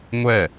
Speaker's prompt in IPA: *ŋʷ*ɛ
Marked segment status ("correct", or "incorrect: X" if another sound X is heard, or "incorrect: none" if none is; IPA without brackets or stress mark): correct